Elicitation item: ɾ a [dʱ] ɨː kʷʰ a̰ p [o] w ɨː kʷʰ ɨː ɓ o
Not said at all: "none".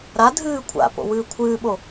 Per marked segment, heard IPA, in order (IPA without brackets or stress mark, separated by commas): dʱ, o̰